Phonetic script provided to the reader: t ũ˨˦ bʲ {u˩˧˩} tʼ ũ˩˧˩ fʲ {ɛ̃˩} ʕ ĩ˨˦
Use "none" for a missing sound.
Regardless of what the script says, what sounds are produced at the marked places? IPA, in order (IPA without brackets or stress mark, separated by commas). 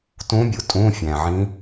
u˩, æ̃˩